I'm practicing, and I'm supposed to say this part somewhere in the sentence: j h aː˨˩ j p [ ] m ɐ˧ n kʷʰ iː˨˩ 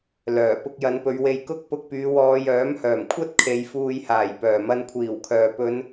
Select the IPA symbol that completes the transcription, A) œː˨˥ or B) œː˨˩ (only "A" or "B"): B